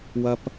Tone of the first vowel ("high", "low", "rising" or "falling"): high